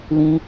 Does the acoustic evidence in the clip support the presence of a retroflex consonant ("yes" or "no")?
no